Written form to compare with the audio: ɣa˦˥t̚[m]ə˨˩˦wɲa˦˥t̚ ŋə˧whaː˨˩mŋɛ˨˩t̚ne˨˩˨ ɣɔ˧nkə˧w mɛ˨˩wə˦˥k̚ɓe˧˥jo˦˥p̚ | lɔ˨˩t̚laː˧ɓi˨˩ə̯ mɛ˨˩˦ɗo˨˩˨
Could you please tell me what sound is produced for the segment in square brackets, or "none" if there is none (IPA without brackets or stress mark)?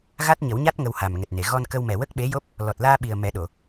ɲ